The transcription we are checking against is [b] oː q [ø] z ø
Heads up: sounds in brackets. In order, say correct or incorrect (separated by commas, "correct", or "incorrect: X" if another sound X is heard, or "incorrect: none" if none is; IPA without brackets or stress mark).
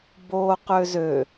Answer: correct, correct